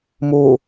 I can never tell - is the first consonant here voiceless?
no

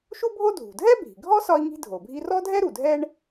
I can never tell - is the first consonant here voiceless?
yes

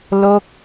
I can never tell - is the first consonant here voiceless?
no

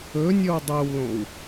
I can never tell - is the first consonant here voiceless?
no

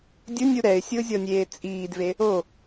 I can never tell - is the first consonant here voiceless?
no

